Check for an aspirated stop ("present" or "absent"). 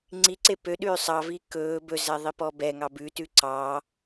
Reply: absent